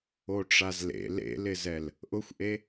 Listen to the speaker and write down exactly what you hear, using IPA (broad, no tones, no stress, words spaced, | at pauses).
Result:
oʈ͡ʂazlḛ lḛlɪzɛl | ʔʊxʷʔe